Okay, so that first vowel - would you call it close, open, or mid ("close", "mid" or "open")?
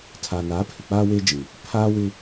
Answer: open